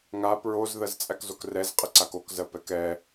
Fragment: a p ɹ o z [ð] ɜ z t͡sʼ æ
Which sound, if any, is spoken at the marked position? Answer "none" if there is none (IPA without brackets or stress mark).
ð